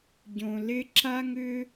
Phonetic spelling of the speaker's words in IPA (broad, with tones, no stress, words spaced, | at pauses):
ɟõ˧lɪ˦ ǁa˦ŋʏ˦